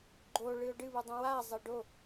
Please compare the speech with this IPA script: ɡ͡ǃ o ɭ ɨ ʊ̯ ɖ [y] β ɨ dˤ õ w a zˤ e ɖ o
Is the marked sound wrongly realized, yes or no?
yes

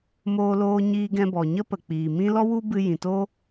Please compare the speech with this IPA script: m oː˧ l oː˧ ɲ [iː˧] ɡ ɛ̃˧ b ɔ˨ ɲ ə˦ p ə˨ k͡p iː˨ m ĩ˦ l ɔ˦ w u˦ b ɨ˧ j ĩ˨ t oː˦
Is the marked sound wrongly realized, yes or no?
no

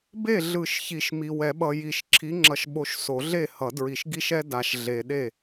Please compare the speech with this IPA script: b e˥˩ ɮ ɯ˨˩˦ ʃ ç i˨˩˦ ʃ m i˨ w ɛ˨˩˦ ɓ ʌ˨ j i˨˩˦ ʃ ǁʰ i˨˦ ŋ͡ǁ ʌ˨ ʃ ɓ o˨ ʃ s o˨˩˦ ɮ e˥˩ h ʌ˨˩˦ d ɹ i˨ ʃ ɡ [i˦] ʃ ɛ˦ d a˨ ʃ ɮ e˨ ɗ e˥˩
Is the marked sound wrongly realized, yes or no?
no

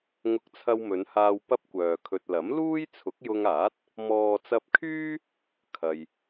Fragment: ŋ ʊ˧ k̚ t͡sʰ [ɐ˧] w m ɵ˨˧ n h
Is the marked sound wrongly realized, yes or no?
no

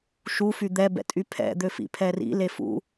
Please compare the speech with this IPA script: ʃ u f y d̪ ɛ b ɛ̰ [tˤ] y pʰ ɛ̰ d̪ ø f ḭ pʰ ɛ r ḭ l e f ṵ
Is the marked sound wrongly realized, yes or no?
yes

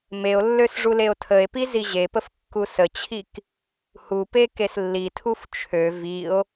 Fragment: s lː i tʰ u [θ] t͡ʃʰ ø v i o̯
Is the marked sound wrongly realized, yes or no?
yes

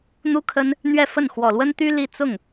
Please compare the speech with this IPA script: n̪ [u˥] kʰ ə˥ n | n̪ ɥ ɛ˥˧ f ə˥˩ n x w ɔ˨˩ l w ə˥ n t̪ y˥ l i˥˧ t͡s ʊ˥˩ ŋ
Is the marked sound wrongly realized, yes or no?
no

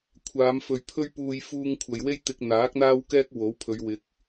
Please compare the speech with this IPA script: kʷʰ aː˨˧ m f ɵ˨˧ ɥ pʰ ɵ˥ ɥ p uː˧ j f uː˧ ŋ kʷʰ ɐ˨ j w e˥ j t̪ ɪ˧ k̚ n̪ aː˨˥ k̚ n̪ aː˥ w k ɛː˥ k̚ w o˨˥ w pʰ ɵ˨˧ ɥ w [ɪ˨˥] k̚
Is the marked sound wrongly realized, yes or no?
no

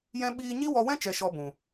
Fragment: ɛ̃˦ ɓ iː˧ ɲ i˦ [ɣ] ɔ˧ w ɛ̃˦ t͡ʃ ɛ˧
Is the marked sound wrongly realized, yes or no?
yes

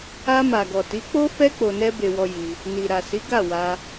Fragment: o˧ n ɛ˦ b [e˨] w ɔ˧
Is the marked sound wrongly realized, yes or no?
yes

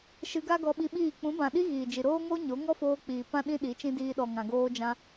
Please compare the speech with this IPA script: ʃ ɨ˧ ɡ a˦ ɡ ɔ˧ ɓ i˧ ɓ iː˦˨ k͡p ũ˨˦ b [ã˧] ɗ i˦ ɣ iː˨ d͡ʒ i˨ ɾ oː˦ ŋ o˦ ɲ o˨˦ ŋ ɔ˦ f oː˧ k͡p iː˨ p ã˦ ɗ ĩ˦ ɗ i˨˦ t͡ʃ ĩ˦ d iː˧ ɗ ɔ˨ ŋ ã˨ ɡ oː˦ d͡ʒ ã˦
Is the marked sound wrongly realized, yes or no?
yes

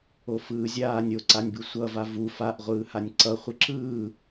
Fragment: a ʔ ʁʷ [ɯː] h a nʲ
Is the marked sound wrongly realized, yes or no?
no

